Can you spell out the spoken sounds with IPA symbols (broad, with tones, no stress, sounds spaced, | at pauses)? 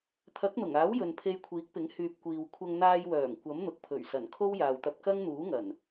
t̪ʰ ɐ˨˥ k̚ n̪ ʊ˨˩ ŋ aː˨˥ w j ɵ˨ n pʰ e˧ j kʷʰ iː˨˥ k̚ p ɪ˨˥ ŋ h yː˨ p̚ kʷ iː˨ w kʷʰ ɐ˧ ŋ n̪ aː˧ j w œː˨˩ ŋ kʷ ɐ˨˥ m n̪ ʊ˨ k̚ pʰ ɵ˨˩ ɥ s ɐ˨˩ n kʰ o˥ w j aː˨ w t̪ ɐ˧ p̚ k ɐ˥ ŋ n̪ uː˨˥ ŋ ɐ˨˩ n